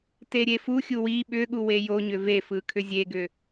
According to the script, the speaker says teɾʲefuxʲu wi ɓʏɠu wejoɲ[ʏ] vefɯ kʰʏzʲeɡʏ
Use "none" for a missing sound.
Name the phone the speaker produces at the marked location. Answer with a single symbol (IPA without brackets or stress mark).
ʏ